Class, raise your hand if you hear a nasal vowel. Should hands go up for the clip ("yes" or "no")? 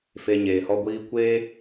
no